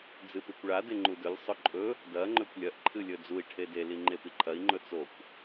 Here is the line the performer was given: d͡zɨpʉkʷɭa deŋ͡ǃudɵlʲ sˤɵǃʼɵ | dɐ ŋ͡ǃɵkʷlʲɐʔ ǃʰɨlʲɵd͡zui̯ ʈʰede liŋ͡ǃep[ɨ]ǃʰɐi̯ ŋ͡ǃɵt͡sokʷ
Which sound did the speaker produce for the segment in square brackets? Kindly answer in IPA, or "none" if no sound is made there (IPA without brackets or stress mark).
i